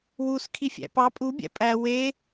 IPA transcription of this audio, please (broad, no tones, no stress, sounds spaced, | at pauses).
w u s kʰ i fʲ æ̰ p ɑ pʼ u bʲ æ̰ pʼ æ w e